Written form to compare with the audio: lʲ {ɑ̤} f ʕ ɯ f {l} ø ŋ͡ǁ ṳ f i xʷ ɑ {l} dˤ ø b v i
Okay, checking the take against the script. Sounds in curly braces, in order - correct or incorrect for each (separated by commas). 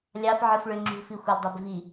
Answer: incorrect, incorrect, correct